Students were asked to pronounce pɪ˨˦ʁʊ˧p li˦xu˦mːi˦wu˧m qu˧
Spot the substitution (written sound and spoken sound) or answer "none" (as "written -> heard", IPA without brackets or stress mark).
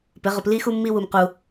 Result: none